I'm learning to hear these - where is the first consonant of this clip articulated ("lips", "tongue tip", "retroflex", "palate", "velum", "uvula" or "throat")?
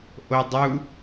throat